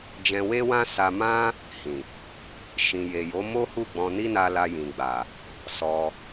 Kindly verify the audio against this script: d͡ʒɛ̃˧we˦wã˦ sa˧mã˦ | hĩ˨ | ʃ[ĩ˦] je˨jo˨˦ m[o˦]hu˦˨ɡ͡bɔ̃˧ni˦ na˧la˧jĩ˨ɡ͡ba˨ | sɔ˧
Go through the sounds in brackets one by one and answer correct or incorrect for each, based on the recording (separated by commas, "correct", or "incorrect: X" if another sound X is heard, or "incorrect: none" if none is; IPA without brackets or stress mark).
incorrect: ĩ˨, correct